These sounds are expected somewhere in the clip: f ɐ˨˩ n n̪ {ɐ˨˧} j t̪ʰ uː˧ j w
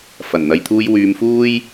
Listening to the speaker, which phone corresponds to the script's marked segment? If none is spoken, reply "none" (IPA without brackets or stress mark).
ɐ˨˧